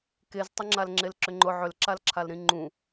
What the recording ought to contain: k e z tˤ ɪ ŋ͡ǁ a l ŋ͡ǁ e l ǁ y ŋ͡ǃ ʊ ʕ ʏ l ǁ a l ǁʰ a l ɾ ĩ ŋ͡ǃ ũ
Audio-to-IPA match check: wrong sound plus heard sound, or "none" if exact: y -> ʏ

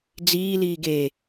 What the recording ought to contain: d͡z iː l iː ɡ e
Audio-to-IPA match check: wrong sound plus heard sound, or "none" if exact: none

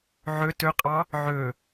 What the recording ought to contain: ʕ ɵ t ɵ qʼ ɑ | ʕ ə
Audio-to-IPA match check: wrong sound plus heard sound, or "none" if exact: ə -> ɵ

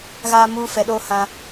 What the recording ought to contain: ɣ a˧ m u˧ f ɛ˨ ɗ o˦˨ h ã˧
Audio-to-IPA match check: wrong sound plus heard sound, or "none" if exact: none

